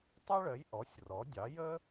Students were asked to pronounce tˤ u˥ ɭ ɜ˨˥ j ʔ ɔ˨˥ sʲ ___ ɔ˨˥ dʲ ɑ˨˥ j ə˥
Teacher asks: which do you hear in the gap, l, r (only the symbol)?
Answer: r